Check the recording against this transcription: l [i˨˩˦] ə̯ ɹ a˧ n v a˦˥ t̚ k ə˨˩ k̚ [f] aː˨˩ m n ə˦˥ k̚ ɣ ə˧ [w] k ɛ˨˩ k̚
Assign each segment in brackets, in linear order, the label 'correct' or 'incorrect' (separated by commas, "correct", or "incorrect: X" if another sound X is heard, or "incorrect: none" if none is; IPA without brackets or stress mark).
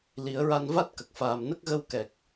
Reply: correct, correct, correct